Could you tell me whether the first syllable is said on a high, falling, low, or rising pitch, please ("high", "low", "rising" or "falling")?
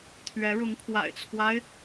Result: rising